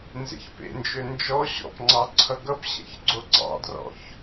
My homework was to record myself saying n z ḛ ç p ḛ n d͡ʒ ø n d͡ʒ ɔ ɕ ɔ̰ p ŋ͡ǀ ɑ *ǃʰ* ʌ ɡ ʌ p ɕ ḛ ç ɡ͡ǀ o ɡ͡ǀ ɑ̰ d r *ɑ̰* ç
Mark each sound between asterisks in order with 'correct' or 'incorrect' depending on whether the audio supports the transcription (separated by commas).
incorrect, incorrect